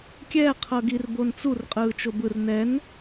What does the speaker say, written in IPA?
kʲ ɛː qʰ ɤ ɡ i r b o n t͡s u r qʼ ɯː t͡ʃ o b ɯ r n ɛ n

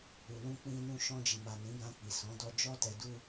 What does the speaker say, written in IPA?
u˨ l ũ˧ k͡p ĩ˧ n ũ˧ ʃ ɔ̃˧ d͡ʒ i˨ m a˨ n ĩ˨˦ ɡ ã˧ k͡p i˨ s ɔ̃˨˦ d ɔ˧ d͡ʒ ɔ˧ t ɛ˨ d u˧

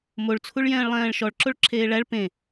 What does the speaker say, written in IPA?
m o ɭ t͡sʰ u ɭ j ɛ̃ː ɭ lˠ ɛ̃ː ɭ ʃ ɔ ɭ ǁ o ɭ ǁʰ eː ɭ æ ɭ p ẽ

